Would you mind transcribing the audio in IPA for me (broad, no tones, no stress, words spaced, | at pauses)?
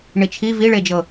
ɳit͡ʃʰi viɭed͡ʒɤ